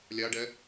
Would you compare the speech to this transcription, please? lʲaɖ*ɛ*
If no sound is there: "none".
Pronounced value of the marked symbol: ɛ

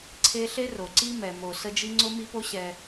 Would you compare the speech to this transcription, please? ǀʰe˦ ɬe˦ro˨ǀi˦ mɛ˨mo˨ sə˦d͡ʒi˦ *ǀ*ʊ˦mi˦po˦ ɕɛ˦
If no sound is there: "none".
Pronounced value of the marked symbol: ŋ͡ǀ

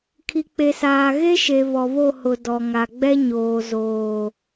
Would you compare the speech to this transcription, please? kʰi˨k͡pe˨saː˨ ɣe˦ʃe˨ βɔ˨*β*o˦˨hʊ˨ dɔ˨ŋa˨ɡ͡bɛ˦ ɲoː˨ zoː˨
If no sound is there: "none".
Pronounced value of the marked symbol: β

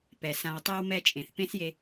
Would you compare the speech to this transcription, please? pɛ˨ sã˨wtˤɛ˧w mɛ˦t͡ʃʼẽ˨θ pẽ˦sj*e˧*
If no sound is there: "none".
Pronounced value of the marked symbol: e˧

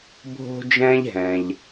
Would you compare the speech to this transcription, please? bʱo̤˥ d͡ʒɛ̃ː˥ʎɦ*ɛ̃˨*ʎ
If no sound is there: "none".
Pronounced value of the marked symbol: ɛ̃˨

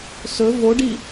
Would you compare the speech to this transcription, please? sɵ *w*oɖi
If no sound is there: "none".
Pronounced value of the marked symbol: v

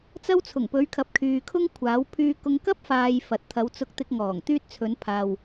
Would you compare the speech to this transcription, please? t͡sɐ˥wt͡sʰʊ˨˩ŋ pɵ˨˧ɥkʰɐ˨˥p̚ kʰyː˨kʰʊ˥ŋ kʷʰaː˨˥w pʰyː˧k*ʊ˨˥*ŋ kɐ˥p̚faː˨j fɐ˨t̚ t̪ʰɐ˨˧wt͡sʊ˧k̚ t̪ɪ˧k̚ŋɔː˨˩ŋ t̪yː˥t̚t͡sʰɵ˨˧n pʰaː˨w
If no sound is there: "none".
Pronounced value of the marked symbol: ʊ˧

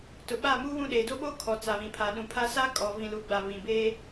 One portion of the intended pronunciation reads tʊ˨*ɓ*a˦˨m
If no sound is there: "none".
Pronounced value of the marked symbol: ɓ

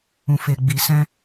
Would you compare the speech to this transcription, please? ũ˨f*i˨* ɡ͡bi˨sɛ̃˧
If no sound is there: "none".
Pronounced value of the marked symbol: e˨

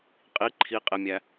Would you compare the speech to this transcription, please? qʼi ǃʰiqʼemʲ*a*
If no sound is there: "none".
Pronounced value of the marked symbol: æ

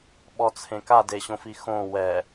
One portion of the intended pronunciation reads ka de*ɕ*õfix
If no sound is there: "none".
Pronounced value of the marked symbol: ɕ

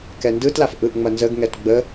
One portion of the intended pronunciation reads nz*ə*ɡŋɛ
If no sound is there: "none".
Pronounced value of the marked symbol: ə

